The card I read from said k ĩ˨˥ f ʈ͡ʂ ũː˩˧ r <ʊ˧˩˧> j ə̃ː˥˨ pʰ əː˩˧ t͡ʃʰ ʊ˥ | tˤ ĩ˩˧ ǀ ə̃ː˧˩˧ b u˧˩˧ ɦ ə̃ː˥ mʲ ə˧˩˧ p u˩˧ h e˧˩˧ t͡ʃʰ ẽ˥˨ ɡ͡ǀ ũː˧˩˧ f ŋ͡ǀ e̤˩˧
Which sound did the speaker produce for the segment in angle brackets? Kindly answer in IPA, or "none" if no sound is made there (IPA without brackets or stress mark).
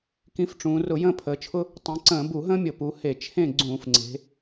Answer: ʊ˧˩˧